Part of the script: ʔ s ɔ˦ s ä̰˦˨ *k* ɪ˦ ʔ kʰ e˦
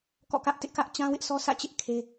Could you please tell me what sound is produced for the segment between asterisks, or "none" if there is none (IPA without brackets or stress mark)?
t͡ɕ